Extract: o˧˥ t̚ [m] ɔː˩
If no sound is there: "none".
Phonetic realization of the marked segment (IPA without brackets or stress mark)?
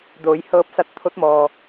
m